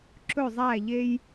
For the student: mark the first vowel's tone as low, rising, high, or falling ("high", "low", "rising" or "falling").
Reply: falling